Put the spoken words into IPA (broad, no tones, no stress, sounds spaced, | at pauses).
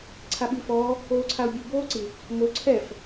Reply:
ǀʰ a ɓ i f ɔː | oː ǀʰ a ʊ̯ bʲ u b oː ǀ i | m o ǀʰ ɛ f